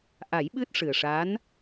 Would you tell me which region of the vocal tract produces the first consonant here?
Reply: throat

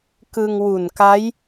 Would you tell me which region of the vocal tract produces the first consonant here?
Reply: velum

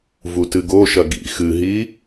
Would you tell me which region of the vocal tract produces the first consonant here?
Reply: lips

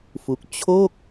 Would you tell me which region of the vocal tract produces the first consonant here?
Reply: lips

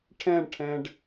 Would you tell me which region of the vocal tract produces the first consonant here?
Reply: retroflex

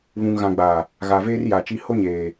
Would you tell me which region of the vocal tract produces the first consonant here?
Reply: lips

